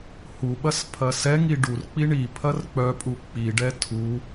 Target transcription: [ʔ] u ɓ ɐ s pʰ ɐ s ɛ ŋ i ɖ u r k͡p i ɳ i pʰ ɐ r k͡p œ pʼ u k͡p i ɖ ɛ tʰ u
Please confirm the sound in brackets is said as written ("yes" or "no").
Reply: no